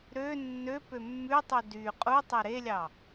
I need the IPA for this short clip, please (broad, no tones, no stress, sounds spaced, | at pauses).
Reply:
ɾ ø nː ø p ø mː ʉ tˤ u d y qʼ u tˤ e ɾ e lʲ ɑ